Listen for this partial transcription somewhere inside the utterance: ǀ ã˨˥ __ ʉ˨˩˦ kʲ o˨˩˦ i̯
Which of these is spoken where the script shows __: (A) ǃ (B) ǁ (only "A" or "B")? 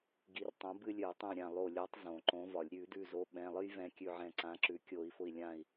B